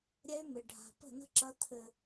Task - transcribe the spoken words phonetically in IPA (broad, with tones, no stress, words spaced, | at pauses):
ɾʲɛ˦y̯mɪ˨ ɖʱa̤˨pə̤˦˨nə̤˦ǁɐ˧ t̪ʰɘ˨